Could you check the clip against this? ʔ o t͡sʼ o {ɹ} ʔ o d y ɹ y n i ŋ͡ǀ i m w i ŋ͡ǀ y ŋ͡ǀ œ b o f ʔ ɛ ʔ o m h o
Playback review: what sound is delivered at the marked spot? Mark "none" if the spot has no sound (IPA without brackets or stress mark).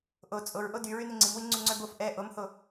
ɹ